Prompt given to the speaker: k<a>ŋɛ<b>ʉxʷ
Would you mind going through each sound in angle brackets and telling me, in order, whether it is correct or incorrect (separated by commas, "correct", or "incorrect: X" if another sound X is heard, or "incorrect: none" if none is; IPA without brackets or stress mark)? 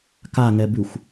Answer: correct, correct